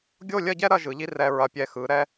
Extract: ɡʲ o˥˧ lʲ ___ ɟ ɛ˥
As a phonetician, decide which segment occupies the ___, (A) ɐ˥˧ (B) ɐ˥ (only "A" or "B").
A